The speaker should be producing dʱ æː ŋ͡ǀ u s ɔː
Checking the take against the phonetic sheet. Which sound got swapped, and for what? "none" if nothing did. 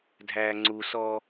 none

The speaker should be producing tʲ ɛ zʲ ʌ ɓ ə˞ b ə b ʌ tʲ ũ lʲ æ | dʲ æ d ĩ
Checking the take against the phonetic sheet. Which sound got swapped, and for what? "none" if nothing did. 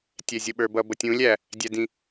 ə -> ʌ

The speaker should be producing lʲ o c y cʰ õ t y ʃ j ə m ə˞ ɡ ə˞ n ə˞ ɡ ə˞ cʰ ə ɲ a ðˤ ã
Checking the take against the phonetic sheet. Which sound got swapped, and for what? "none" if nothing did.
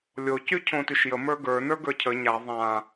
none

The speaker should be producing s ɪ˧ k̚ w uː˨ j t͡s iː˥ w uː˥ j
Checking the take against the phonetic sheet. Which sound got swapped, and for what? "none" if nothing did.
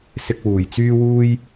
iː˥ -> yː˥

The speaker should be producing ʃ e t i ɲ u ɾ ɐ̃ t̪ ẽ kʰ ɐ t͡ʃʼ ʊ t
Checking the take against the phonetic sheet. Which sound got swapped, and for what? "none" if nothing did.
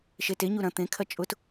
i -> e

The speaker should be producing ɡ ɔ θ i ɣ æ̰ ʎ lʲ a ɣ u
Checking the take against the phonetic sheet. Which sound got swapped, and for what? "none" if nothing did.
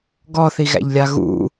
u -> ṵ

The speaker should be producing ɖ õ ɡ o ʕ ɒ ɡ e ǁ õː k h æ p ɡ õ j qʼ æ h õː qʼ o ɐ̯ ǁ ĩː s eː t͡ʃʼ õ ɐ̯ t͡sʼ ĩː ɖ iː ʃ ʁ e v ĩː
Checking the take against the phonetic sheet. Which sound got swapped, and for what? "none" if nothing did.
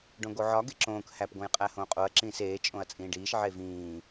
ʁ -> ʕ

